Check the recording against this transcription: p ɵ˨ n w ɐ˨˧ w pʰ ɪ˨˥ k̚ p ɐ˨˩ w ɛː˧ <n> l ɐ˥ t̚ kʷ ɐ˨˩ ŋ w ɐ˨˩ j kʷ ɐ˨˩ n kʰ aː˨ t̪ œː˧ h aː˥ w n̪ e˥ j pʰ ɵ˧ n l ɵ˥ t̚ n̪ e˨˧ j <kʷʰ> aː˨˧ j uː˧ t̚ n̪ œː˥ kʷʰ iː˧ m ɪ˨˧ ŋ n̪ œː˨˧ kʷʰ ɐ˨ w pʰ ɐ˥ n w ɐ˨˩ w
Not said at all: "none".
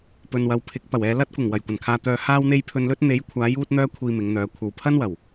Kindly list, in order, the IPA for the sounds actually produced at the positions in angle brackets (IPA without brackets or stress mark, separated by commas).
none, kʷʰ